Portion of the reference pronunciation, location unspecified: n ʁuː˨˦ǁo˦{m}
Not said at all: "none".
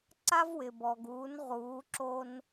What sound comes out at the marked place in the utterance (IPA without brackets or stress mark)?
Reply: n